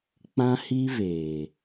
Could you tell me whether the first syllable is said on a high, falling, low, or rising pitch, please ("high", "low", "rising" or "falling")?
high